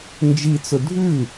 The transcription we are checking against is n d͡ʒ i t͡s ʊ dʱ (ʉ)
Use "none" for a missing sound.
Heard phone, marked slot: ʉ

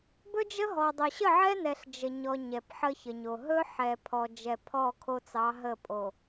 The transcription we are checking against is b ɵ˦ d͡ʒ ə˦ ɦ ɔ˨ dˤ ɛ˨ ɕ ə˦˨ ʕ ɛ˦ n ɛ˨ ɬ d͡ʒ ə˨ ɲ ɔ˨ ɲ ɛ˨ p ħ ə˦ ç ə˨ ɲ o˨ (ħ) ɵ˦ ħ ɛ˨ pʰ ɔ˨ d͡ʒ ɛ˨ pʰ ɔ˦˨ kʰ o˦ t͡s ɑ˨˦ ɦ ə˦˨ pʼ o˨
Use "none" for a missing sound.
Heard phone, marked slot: ɦ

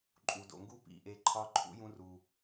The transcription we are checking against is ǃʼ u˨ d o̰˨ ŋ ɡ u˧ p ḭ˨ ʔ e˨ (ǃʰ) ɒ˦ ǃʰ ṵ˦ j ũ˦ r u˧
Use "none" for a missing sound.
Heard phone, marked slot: ǃʰ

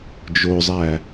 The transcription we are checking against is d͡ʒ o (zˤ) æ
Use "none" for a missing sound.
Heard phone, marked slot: zˤ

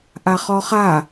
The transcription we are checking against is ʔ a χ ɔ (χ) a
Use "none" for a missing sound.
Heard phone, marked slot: χ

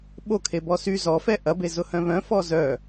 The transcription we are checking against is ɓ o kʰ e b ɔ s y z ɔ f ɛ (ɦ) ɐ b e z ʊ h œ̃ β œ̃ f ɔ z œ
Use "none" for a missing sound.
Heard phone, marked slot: ʔ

